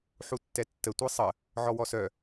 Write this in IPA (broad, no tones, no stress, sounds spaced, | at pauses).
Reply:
ħ u tː ɛ tː ə tʷ i sˤ ə | ʕ ɔ w ɔ s œ